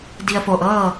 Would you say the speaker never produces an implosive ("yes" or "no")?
yes